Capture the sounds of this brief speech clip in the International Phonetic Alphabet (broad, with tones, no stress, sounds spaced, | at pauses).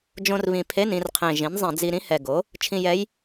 d͡ʒ õ˧ r β ĩ˨˩ pʰ e˧˥˧ n ĩ˧ r qʰ ẽ˨˩ ʒ ĩ˩˥ n zˤ ɛ̃˧˩˧ d͡z i˧ ɾ ĩ˧˥ h ɛ˨˩ ɡ o˩˥ | t͡ʃʰ ĩ˧ j ɛ˧˥ j